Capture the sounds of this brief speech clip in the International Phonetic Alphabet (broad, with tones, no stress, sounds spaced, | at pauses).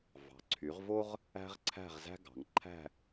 v ɑ̤˩˧ ǀʰ y˩˧ ʁ v o˥ ʁ | æ̤˥ ʁ ǀʰ æ̤˥˧ ʁ z æ̤˥ ɡ ɑ̤˩˧ ŋ ǃʰ æ̤˥˧